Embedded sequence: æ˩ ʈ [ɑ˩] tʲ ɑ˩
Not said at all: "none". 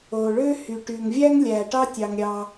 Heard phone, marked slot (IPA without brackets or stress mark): ɑ˥